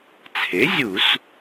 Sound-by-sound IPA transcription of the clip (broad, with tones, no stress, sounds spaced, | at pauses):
t͡sʰ e˩˥ zʲ u˧˩˧ s